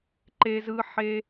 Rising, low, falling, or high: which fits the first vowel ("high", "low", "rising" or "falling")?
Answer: low